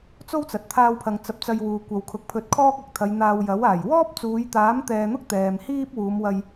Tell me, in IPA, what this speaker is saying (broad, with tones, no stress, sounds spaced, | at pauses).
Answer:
t͡s o˥ w t͡s ɐ˨ t̚ t̪ʰ aː˧ w pʰ ɐ˨ ŋ t͡s ɐ˨ p̚ t͡s ɐ˧ j w uː˨ kʷ ɐ˨ w kʰ ʊ˨˥ k̚ pʰ ɵ˧ t̚ kʰ ɔː˥ k̚ ɐ˨˥ k̚ t̪ʰ ɐ˨˧ j n̪ aː˧ w j ɐ˨˥ w aː˨˩ j w ɔː˥ p̚ t͡s uː˨˧ j t̪ aː˨˥ m t̪ ɛː˧ n̪ ʊ˥ k̚ t̪ ɛː˨ m h iː˥ p̚ w uː˨˧ m w ɐ˧ j